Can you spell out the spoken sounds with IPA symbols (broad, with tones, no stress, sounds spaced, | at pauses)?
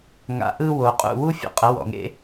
ŋ a̰˨˦ ʔ ɯ˧ w o˨ qʼ ṵ˦˨ w u˦ fʲ ḛ˧ qʼ ə˨˦ w ɔ̰˨ ŋ ḛ˦